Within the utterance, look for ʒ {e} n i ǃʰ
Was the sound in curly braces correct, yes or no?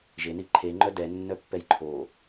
yes